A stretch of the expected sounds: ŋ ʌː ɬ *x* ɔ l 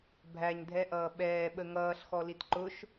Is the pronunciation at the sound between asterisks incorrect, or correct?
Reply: correct